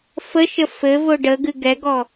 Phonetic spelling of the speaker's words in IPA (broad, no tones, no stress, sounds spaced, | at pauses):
f ə ʃ ə f ɘ v o ɖ ə ɡ ɨ ɡ ɛ ɡ ɔ